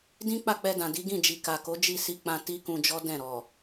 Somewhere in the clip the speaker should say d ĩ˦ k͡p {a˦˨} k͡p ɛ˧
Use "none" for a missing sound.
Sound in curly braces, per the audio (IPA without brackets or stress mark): a˦˨